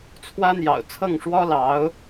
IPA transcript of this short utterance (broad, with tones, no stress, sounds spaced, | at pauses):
t͡sʰ w ä˥ n̪ j ɑ̰˨˩ ʊ̯ t͡sʰ ɤ˥˩ ŋ ʂ w ɔ˥ l ɑ˧˥ ʊ̯